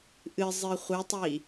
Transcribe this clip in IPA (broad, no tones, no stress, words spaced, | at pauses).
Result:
ʔɨzˤɨ χʷɨtˤi